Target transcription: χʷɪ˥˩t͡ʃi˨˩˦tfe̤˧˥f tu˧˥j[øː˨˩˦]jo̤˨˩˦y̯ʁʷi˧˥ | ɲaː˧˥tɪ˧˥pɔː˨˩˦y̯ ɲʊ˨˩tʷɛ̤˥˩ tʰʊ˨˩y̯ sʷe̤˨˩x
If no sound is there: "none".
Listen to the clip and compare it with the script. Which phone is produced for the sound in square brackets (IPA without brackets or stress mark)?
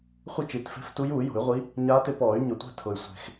uː˨˩˦